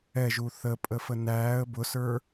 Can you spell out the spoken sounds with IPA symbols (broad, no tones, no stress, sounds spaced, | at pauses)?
ɛ ʒ u θ ə pʼ ə f ə n æː ə̯ b ʊ s ə˞